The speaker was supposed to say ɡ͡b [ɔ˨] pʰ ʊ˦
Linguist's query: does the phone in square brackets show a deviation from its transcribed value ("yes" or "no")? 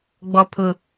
yes